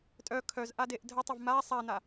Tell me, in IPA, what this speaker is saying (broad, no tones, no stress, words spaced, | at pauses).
tʼœ kʰœzʔadeʔ dʱətˤəv ma sˤana